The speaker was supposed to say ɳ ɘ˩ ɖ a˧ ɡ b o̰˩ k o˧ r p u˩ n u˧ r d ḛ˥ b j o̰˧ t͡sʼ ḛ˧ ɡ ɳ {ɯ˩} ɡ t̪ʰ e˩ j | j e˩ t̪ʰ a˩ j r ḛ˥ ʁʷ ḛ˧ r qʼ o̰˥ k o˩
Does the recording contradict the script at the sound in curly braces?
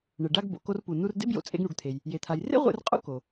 yes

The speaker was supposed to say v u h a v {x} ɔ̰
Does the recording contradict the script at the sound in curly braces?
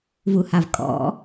yes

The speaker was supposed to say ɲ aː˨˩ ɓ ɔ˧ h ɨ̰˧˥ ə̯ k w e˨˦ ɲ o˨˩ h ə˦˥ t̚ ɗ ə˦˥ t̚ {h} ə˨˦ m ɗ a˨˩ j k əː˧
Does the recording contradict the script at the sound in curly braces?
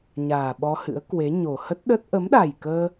yes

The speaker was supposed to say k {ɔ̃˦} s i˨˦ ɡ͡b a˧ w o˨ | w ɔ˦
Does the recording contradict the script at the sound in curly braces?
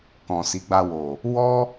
yes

